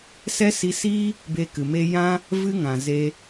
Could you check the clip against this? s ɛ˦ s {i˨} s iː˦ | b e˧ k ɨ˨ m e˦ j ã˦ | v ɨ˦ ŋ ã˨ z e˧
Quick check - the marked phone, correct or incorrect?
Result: incorrect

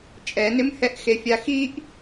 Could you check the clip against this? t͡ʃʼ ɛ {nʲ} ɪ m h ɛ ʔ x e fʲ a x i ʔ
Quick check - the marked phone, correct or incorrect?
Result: incorrect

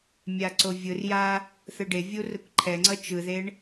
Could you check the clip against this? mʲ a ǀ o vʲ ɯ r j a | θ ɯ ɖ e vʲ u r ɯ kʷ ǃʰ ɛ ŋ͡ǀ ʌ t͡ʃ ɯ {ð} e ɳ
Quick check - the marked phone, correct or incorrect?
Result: correct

